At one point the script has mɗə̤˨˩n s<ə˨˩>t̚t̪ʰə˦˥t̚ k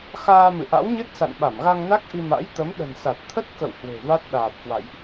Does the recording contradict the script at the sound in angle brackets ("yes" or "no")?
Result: yes